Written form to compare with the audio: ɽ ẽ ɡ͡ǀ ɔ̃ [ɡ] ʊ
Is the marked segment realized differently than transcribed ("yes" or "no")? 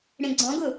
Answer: no